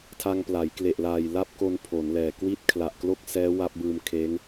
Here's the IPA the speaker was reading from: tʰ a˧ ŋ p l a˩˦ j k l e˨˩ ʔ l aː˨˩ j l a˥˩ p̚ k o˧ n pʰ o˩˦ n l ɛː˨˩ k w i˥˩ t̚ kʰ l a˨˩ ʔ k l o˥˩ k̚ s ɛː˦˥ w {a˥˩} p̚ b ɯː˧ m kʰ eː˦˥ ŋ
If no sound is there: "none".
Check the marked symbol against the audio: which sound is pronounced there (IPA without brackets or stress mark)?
a˦˥